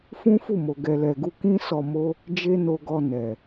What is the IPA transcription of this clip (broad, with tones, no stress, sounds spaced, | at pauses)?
f ũ˦ f u˦˨ m o˨ ɡ ɛ˨ l ɛ˨ ɡ u˧ k ĩ˦ s ɔ˧ m o˦ | d͡ʒ e˦ n o˧ ɡ ɔ˧ n ɛ˨